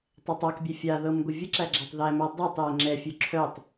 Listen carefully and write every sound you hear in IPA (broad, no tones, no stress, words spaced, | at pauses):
tˤɛtˤakbʲɛ fʲaðɤm ɡʷəvʲəǁæ ɡ͡ǁætˤðæmæ dˤœtˤjɛ ŋ͡ǁɛfʲœ ǁʰœtˤ